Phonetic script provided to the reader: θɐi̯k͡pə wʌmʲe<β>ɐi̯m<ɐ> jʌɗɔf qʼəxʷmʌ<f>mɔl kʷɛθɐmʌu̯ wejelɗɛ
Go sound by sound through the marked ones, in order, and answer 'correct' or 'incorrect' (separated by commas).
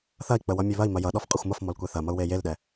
correct, correct, correct